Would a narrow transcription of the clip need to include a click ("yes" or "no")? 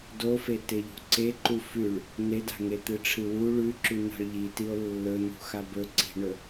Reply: yes